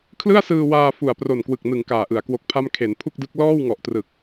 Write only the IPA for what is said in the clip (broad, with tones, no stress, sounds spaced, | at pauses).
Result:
kʰ l ɯ˥˩ a̯ s ɯː˧ w aː˧ f u˨˩ a̯ p r o˨˩ n k w ɯ˨˩ k̚ n ɯ˩˦ ŋ k aː˨˩ ʔ ɯ˩˦ a̯ k w o˦˥ k̚ pʰ a˥˩ m kʰ e˩˦ n pʰ u˥˩ k̚ d ɯ˦˥ k̚ l ɔː˥˩ w ŋ ɔ˨˩ ʔ t r ɯ˨˩ k̚